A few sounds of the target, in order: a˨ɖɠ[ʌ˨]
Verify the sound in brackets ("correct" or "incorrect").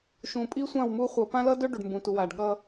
incorrect